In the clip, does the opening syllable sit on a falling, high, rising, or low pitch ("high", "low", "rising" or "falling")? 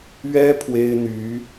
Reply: high